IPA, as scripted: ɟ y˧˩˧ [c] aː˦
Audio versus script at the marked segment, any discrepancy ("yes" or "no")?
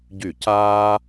no